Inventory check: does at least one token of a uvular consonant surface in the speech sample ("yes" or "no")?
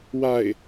no